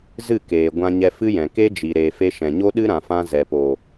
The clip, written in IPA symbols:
zɨ˦˨keː˨ ɡʷã˧ɲɛ˧fɨ˦jɛ̃˨ ke˦d͡ʒi˨ ɾeː˨fe˧ ʃɛ̃˨ɲo˦ɗɨ˦ ɾã˨fã˧ zɛ˨po˨

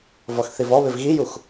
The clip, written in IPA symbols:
vɔxθivɔβɪv ɣijux

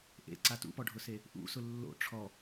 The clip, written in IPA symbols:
ʔḛǀa tṵpɔɖʱʊse | ʔṵsʊ lːo̰ ʈ͡ʂʰɔ

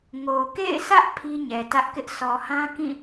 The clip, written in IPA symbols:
ŋo˨ kḛ˦˨ɪ̯sä˦ʔ pʰi˦ɲɛ˨tä˦ʔkɪ˦ʔ sɔ˨hã˦kĩ˦˨

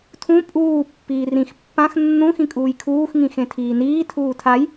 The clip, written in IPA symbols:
tʰũ pʼuː pːiːrĩx pːãx nːũ xĩkʼuːjkʰuːx ŋĩxẽtʰiːniː tʰuːtʰaj

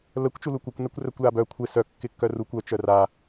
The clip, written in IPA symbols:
ləkʷ t͡ʃulukʷœkʷ nɛkʷrœkʷlabœ kʷʰɪ sœ kːɪkːœrukʷ œ t͡ʃœra

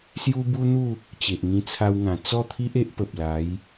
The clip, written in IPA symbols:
sju˦bu˦n̪u˥˧ | t͡ɕe˨ʔŋĩ˧t͡sʰa˧wŋã˨˩ t͡sɔ˥˧t̪ʰi˦ʔe˦ʔ pə˨p̚la˨˦j

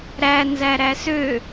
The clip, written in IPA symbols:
ɾænzæɾæ sø

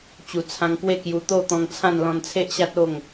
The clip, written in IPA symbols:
t͡ɕu˨˩t͡sʰã˧ŋkwe˥˧kju˧ t̪o˥˧t̪ɔ̃˧ŋt͡sʰã˥˧n lɔ̃˧nt͡sʰe˦ʔɕa˦t̚o˥˧ŋ

